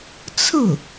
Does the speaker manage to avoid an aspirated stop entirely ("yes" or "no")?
no